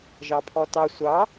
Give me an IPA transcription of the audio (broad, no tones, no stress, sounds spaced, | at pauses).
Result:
ʒ ɑ pʰ ɔ t ɑ sʷ ɑ